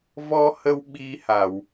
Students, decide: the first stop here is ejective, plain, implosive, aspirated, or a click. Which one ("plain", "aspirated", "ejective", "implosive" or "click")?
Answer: implosive